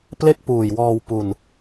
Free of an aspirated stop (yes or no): yes